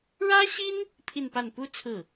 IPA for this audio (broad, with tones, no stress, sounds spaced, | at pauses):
ɻ ä˥ ɕ i˥ n | pʰ i˥˧ n p a˥˩ n p u˥ t͡sʰ ɹ̩˥˩